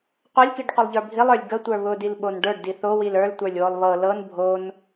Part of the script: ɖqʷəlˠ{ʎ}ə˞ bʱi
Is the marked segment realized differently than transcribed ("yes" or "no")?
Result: no